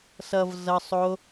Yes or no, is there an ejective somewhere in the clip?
no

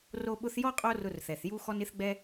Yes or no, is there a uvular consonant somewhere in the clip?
yes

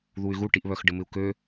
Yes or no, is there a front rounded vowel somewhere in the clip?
yes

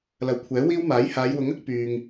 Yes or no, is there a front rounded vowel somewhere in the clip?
yes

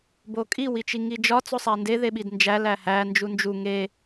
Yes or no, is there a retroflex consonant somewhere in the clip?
no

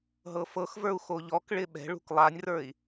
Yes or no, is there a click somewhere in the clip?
no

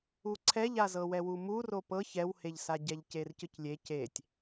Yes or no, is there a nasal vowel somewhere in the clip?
no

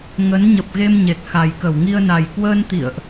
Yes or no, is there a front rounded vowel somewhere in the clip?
no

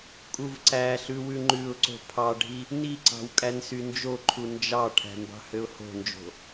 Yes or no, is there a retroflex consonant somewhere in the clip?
yes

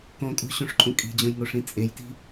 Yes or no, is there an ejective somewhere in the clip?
yes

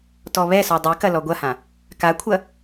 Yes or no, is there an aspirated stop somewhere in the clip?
yes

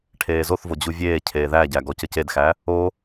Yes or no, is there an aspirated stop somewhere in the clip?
yes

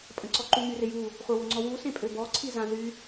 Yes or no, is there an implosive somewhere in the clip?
no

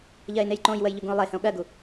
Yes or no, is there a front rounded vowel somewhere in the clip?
no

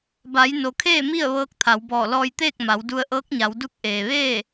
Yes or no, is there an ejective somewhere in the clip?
no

